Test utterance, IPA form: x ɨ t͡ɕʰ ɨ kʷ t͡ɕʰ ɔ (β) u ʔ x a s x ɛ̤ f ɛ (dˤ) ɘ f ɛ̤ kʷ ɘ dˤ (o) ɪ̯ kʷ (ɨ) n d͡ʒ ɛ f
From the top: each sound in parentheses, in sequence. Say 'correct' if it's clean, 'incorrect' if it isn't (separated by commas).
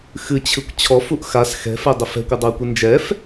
incorrect, correct, correct, correct